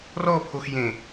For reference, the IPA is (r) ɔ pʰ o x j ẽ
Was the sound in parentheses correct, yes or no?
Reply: yes